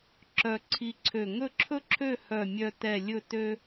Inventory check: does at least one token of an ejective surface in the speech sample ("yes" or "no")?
no